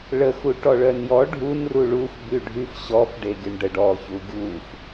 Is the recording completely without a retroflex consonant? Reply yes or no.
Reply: no